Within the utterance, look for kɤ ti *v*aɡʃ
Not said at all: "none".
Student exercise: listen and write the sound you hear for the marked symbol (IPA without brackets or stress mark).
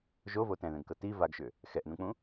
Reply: v